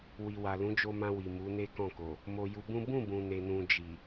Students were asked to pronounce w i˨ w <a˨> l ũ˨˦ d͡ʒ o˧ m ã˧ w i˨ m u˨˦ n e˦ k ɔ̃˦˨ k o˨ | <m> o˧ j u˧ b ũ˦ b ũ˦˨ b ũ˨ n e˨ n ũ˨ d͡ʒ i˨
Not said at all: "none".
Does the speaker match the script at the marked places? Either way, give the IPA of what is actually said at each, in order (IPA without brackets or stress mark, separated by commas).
a˨, m